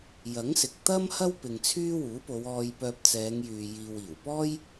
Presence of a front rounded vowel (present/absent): present